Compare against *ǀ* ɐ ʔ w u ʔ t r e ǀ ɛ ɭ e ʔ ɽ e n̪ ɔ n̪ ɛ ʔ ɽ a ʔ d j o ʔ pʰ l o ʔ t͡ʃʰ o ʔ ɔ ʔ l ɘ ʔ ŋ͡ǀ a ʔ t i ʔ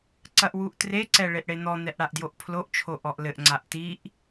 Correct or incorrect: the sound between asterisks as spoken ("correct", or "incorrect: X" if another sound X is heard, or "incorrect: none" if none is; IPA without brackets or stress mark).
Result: correct